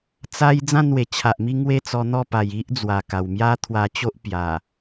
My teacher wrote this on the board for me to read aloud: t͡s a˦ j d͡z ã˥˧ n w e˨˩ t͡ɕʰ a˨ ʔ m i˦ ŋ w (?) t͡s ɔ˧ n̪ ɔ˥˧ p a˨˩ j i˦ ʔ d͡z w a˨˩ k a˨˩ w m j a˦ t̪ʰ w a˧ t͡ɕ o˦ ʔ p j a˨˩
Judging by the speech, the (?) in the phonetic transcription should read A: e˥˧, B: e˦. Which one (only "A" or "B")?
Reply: A